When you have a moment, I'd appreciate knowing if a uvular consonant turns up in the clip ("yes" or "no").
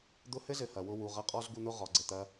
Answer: yes